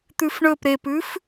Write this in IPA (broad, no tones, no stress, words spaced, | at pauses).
t̪ʉfɳɵp ɾepʉf